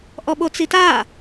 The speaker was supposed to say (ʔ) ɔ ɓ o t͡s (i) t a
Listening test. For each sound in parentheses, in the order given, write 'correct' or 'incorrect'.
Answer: correct, correct

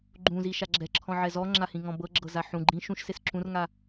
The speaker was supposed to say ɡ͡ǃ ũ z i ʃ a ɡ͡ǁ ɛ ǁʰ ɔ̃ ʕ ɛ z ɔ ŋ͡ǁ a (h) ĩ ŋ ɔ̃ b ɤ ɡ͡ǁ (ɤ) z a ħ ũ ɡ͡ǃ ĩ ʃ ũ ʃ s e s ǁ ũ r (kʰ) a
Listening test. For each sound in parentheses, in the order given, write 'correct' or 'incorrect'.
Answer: correct, correct, incorrect: ŋ

